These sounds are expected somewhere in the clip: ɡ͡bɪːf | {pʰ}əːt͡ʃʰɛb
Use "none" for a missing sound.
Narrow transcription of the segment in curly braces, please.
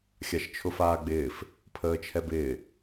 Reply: pʰ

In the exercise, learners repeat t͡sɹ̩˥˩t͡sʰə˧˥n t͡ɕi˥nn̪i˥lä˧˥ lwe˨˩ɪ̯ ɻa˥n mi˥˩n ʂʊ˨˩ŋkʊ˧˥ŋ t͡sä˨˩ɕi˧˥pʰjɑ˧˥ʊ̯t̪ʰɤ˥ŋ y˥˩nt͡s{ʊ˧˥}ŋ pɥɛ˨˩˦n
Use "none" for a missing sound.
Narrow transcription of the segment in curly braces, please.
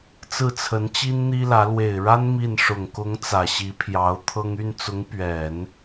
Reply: ʊ˧˥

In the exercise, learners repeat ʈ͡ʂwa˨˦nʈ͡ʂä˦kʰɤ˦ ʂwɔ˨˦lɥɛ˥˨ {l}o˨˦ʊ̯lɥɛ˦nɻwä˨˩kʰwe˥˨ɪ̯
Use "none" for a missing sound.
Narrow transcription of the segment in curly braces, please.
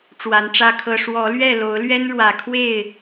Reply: l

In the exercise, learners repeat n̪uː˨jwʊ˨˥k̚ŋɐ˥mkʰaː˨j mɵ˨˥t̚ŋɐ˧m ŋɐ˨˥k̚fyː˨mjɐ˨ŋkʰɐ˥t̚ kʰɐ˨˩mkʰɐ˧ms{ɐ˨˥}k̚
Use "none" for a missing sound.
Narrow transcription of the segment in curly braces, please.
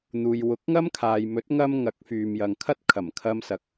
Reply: ɐ˨˥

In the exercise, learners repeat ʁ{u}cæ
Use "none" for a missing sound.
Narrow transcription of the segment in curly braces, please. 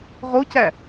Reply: o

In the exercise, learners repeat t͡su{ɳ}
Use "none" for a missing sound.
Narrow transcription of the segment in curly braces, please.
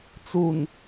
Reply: n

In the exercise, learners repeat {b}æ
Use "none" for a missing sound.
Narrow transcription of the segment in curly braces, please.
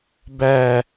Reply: b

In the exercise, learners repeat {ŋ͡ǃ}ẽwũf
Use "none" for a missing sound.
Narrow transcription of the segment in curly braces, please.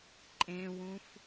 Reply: ǃʼ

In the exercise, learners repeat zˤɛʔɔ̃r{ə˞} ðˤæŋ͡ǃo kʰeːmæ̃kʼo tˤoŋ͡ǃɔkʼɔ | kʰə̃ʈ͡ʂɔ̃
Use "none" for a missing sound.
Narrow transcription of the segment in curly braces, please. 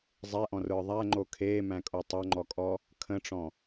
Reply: ə˞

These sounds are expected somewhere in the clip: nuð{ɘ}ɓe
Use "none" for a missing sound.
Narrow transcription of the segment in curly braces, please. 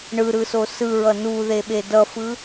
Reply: e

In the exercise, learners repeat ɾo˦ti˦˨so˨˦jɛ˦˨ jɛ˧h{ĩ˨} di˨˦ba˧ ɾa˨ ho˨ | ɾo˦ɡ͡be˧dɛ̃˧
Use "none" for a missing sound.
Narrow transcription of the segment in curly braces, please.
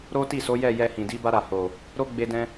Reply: ĩ˨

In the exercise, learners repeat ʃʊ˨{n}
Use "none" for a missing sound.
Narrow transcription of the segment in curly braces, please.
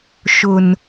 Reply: n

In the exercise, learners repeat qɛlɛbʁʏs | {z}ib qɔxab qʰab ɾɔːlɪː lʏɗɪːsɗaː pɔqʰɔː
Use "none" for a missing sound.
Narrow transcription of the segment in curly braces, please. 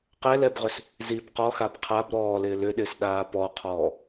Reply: z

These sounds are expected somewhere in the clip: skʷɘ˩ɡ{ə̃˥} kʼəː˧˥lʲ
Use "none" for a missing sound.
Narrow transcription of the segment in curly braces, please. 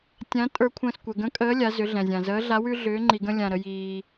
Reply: ə̃˧˥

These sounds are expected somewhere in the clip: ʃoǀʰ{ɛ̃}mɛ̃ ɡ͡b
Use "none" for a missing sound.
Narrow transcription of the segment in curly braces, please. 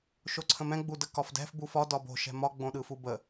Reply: ə̃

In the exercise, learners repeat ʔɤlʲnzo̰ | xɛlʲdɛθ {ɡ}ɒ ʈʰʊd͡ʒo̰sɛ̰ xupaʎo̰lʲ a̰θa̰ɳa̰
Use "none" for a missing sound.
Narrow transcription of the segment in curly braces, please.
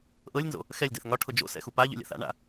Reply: ŋ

